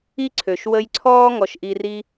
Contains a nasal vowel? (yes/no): no